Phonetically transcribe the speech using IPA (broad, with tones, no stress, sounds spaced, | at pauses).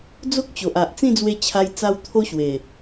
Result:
d͡z o˦ k̚ t͡ɕ o˨ ʔ a˨ ʔ t͡s ĩ˥˧ d͡z w e˧ t͡ɕʰ a˧ j t͡s a˧ w t̪ʰ o˦ ɕ w e˨˩